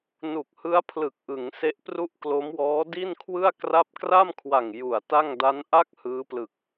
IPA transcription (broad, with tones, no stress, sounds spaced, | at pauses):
n u˨˩ k̚ h ɯ˦˥ a̯ pʰ l ɯ˨˩ k̚ ʔ ɯ˩˦ ŋ s e˦˥ ʔ p r u˥˩ ʔ k l o˦˥ m w ɔː˦˥ d i˥˩ n kʰ w ɯ˥˩ a̯ k r a˦˥ p̚ k r a˥˩ m kʰ w a˨˩ ŋ j u˨˩ a̯ t a˥˩ ŋ d a˦˥ n ʔ a˥˩ k̚ h ɯː˦˥ p l ɯ˨˩ k̚